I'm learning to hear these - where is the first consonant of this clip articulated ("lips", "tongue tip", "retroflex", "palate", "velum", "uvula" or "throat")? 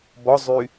lips